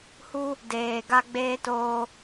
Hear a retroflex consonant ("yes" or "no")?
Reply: no